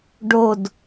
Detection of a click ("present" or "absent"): absent